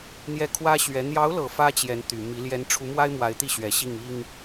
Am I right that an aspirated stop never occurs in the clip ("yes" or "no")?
no